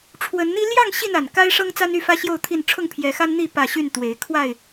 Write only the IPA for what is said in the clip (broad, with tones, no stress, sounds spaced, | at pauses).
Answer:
ʈ͡ʂʰ w ə˨˦ n n̪ i˦ l j ɑ˥˨ ŋ ɕ i˥˨ n a˨˩ n k a˦ ɪ̯ ʂ ɤ˦ ŋ t͡s a˦ n y˥˨ f ä˦ ɕ j o˥˨ ʊ̯ t̪ʰ i˥˨ n ʈ͡ʂʰ ʊ˥˨ ŋ pʰ j ɛ˨˦ x a˦ n n̪ i˥˨ p ä˥˨ ɕ y˥˨ n t̪ w e˨˦ ɪ̯ kʰ w a˥˨ ɪ̯